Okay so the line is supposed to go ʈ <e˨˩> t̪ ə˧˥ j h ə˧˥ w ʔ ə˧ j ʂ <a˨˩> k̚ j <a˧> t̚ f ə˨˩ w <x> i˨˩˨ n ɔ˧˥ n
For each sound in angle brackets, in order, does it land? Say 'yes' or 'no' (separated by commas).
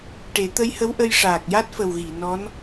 no, no, no, no